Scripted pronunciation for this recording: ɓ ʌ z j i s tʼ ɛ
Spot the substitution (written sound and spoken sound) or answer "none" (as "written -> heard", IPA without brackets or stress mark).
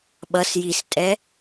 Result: z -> s